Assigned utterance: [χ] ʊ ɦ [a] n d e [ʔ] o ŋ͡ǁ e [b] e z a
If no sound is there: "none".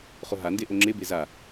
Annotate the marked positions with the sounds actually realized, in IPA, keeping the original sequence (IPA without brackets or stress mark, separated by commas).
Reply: χ, a, ʔ, b